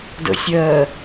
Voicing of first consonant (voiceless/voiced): voiced